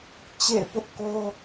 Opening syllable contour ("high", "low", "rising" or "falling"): falling